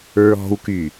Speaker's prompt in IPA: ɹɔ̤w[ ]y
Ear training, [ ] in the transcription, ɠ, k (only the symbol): k